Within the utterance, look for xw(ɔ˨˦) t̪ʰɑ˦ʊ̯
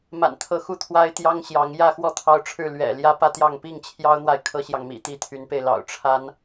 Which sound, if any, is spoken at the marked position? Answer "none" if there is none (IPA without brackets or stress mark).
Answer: ɔ˥˨